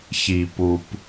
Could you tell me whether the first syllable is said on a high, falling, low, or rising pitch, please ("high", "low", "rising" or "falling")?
low